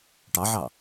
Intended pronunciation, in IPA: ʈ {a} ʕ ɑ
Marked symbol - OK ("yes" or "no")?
no